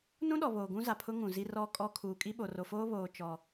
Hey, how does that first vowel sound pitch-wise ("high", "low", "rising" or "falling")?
high